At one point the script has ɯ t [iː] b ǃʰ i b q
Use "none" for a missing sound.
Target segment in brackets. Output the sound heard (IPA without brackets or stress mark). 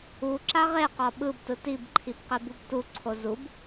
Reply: i